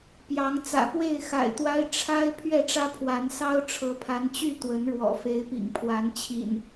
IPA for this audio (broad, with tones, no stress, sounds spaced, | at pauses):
p j ɑ˨˦ ŋ t͡s ä̰˨˩ p w e˥˨ ɪ̯ x a̰˨˩ ɪ̯ t̪ w a˦ ɪ̯ ʈ͡ʂʰ a˦ ɪ̯ pʰ ɥ ɛ˥˨ ʈ͡ʂ ä˦ pʰ w a˨˦ n s ɑ˦ ʊ̯ ʈ͡ʂʰ ɤ˨˦ pʰ a˨˦ n t͡ɕ y˥˨ t̪ w ə˨˦ n ɻ w ɔ̰˨˩ f e˨˦ ɪ̯ p ḭ˨˩ ŋ pʰ w a˨˦ n t͡ɕʰ ḭ˨˩ n